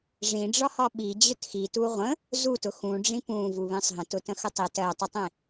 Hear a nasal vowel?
yes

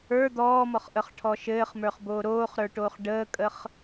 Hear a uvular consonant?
yes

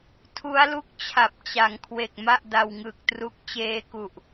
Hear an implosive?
no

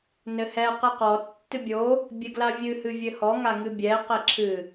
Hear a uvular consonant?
yes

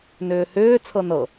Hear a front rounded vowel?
yes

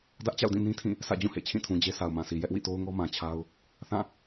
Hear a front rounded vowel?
no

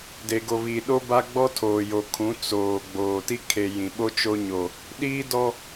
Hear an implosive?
yes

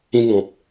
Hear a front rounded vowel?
no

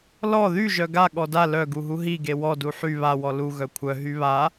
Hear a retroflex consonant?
no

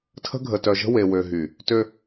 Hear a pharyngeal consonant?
no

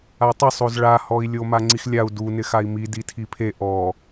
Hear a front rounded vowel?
no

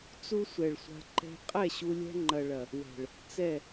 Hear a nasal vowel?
no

